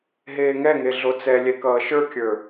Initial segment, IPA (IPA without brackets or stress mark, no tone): ɦ